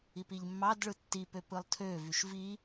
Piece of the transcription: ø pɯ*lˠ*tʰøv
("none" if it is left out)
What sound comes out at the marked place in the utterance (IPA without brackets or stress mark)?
lˠ